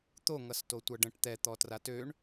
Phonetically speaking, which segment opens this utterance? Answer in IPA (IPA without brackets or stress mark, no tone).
t̪